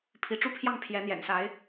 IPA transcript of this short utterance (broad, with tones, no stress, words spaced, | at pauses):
pʰi˧˥ʈ͡ʂu˥pʰjɑ˥˩ŋ pʰjɛ˧˥n̪jɛ̰˨˩nsa˧˥ɪ̯